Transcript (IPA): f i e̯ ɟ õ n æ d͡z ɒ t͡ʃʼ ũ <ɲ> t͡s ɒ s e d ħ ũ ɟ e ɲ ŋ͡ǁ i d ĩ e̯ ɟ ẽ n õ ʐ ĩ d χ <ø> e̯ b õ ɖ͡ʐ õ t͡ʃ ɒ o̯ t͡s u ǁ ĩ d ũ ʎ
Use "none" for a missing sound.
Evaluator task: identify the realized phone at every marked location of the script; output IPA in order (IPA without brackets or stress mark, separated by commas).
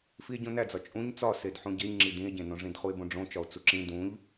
ɲ, u